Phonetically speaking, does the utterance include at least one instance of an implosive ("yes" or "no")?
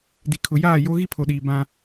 yes